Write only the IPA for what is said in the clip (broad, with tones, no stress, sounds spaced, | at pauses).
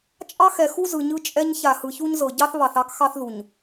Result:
t͡ʃʼ ɑ˦ x ɛ˨ x u˦ z ɯ˨ ɲ ɯ˦ t͡ʃʼ ɛ˦ ɲ ç a˨ h ɯ˨ ç u˦ ɲ z ɤ˨ ɟ ɑ˦ θ β ɑ˨ θ ɑ˦ k x ɑ˦ θ ð u˨ ɲ